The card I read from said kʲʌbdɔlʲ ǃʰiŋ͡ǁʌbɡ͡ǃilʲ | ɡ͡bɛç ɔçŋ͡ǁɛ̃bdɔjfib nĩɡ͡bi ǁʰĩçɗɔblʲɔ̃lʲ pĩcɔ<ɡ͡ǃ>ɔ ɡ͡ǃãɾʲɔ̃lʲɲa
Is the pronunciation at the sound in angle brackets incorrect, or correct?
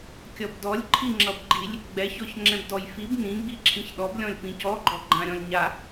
correct